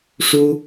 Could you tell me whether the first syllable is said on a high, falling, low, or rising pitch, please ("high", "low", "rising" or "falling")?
high